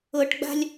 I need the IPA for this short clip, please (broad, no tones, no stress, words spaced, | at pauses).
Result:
ɤʈɡ͡ba̤lʲ